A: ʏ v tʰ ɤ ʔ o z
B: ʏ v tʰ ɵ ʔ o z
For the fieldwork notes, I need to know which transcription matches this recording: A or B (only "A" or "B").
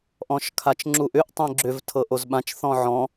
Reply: A